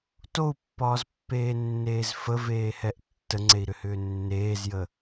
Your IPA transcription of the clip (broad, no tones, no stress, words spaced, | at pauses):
tou̯pːɒːzpːeːnːeːz fəveːhɛʔ tːəŋ͡ǀei̯ɾʏhʏː nːeːzjə